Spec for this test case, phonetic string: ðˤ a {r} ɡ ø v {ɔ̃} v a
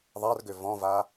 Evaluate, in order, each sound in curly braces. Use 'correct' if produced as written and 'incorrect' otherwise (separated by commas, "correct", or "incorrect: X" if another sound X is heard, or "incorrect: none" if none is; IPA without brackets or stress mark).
correct, correct